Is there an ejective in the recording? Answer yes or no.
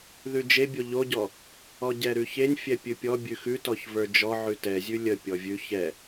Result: no